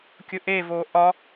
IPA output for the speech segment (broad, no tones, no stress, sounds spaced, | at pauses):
kʲ ʊ ʔ e v o ʔ ɒ